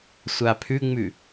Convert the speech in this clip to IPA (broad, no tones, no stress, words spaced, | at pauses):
sʷapʰʉŋ͡mʉ